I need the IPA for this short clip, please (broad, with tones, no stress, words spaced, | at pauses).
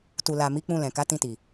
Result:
tu˨la˨ mi˨˦k͡pũ˧lɛ̃˨ ka˨˦tĩ˧ti˨